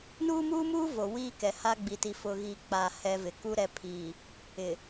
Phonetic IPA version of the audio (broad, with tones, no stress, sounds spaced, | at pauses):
n uː˦ m uː˦ m uː˦ v o˨ w iː˦ k ɛ˨ h a˦ ɡ͡b i˨ t i˨ f ʊ˦ ɣ i˦ k͡p a˨ h ɛ˦ v ɪ˨ k u˦ ɾ ɛ˨˦ pʰ iː˨ | ɪ˨